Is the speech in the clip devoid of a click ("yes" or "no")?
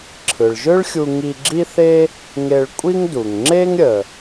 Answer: no